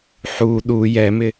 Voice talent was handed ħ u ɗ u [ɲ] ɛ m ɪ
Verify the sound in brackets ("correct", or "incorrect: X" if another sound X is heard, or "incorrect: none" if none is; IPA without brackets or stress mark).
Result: incorrect: j